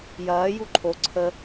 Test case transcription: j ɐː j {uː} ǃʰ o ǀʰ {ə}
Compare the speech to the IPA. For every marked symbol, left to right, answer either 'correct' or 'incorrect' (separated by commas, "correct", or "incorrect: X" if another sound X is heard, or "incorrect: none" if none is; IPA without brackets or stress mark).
incorrect: u, correct